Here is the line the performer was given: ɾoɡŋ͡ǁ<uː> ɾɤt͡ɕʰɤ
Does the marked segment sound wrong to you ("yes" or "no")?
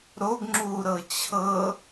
no